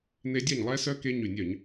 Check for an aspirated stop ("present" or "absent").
absent